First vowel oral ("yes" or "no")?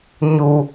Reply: yes